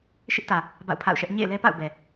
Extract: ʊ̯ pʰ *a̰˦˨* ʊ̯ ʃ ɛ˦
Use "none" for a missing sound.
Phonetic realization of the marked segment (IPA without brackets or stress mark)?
a̰˦˨